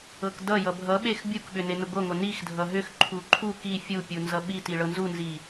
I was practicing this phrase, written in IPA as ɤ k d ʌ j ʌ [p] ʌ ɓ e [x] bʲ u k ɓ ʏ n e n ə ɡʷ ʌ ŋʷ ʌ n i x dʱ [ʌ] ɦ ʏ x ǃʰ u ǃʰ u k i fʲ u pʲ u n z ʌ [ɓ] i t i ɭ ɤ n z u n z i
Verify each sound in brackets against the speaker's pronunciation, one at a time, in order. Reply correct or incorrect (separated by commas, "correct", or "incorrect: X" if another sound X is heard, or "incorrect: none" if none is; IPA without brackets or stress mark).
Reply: incorrect: bʱ, correct, correct, correct